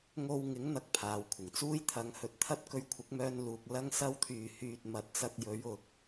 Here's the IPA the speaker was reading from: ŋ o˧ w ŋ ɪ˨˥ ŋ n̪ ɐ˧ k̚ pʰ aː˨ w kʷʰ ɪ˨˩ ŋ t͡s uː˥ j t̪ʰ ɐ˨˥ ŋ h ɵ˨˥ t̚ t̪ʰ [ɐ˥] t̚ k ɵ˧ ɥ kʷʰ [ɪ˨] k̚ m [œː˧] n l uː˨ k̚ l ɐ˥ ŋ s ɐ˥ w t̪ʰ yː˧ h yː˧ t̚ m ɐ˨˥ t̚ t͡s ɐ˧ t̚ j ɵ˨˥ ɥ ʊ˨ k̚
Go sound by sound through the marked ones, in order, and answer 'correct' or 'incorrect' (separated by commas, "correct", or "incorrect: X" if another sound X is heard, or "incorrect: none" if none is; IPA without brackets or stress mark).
correct, incorrect: ɪ˨˥, correct